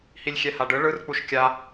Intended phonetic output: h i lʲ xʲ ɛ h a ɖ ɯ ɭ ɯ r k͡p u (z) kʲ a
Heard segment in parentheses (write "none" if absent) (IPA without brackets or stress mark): ʃ